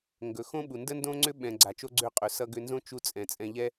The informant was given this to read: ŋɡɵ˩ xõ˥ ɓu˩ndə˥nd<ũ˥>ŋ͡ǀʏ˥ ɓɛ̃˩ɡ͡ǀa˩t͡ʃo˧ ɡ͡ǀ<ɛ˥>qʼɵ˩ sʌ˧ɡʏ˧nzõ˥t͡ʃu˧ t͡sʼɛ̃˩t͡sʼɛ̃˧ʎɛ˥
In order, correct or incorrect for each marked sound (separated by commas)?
incorrect, incorrect